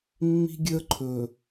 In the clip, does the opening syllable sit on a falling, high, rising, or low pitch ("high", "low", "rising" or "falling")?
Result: high